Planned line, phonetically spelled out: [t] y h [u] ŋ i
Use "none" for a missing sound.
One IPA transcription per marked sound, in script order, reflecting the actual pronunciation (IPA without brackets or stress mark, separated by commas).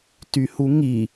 t, u